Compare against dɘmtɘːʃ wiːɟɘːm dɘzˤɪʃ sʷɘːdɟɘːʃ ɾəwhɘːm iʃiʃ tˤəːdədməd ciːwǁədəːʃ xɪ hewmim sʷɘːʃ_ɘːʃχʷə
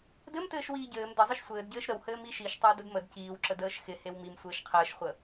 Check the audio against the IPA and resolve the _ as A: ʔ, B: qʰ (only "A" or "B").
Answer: B